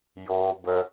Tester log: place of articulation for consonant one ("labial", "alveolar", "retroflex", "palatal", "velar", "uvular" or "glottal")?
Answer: palatal